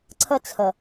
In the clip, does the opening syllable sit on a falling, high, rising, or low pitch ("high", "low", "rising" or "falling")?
high